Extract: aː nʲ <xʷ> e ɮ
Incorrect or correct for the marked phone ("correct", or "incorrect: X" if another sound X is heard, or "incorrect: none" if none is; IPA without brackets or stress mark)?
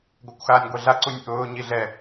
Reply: incorrect: ɡʷ